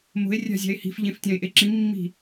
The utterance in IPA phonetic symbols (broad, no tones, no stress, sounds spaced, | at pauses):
m o̤ e̯ rʲ a̤ zʲ a̤ e̯ h i̤ f ʎ ẽ f tʲ ã e̯ ʔ e ǁ ĩ mː i̤